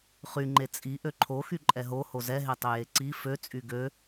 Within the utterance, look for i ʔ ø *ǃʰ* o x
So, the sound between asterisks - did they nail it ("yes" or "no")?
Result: yes